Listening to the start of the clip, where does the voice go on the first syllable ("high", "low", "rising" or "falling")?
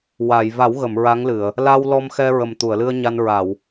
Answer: low